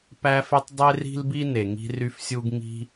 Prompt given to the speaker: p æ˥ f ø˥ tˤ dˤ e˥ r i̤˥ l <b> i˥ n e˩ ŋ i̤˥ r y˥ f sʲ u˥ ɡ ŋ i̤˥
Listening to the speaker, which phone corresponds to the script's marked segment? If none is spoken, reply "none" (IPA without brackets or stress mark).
b